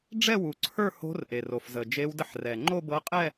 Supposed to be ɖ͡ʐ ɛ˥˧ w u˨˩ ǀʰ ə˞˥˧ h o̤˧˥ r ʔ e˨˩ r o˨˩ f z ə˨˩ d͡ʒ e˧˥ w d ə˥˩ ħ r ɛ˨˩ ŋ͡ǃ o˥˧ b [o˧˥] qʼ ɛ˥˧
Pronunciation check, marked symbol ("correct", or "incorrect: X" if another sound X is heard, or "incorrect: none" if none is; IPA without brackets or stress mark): incorrect: ɤ˧˥